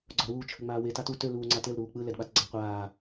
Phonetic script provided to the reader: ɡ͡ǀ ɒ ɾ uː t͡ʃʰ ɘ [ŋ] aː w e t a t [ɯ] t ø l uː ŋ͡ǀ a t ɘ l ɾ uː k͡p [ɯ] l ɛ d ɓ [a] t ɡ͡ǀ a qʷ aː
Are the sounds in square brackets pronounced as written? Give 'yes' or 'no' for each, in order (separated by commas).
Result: no, no, yes, yes